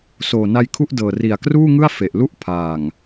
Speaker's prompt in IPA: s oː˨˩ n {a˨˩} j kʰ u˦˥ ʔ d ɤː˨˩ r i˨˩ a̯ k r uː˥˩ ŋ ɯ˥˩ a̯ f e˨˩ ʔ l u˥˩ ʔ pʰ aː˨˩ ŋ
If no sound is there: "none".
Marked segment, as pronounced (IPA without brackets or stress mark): a˧